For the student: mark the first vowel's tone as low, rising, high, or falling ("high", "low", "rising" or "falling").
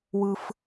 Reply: high